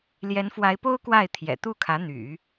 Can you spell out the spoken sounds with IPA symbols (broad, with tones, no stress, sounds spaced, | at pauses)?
l j ɛ˧˥ n f w a˧˥ ɪ̯ p o˥ ʊ̯ k w a˥˩ ɪ̯ t̪ʰ j ɛ̰˨˩ t̪ u˥˩ kʰ ä˧˥ n̪ y̰˨˩˦